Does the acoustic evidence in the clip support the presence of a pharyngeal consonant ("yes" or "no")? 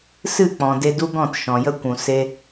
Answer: no